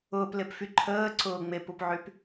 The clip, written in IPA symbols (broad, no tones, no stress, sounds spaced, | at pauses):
ʊː p l e p f y ǃʰ əː ǀ ʊː ŋ͡m e p u p ʕ y p